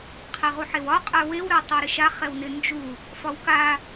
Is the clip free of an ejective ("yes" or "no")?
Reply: no